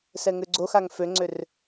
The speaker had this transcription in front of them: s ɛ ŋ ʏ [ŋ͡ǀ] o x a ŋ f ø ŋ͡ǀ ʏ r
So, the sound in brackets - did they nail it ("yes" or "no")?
no